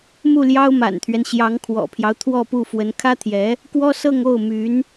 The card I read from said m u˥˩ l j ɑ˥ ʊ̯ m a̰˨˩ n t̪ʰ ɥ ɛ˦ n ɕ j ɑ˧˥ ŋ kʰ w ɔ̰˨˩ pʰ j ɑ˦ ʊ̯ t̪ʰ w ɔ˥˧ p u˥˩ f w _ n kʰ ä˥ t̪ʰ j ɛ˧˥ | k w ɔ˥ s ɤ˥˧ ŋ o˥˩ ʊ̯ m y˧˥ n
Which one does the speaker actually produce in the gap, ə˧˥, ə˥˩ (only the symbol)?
ə˧˥